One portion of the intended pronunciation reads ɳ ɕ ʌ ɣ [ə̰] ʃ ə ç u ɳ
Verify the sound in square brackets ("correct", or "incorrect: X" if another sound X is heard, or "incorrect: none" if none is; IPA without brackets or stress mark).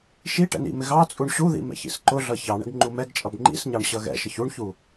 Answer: incorrect: ɛ̰